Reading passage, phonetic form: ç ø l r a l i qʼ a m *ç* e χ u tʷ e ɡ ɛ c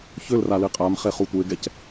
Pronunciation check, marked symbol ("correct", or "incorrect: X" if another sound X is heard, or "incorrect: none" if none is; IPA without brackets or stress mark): incorrect: χ